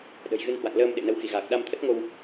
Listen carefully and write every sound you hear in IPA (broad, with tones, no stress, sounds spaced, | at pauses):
ɗ ə̤˨˩ j ɣ ɨ˧ n h w a̰˧˨ ŋ l əː˧ m ɗ ḛ˧˨ n ə˨˦ w x i˧˩ ɣ aː˨˩ k̚ ɗ a˧ m t̪ʰ ə˦˥ t̚ ŋ o˧ w